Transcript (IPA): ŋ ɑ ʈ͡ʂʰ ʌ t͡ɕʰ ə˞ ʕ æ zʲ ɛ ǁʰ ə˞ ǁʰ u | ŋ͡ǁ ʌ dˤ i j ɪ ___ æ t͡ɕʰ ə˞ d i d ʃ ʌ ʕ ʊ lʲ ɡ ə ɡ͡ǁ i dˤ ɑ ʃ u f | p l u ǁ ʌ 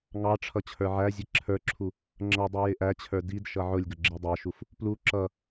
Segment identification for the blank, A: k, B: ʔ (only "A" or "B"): B